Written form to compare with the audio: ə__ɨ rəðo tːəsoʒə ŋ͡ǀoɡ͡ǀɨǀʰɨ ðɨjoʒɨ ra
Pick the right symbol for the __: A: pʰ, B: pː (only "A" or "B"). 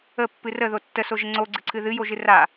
B